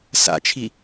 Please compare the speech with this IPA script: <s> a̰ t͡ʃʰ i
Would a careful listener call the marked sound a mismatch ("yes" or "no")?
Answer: no